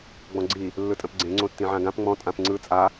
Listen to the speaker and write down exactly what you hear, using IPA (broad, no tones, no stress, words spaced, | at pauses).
ɡ͡bɔ̃ɡ͡ǀi | lːɯtʼə̃pɡ͡ǀẽ ŋ͡ǀõtːĩʕãɡãp ŋ͡mɔ̃ tʼãpŋ͡ǀɯ t͡sʼa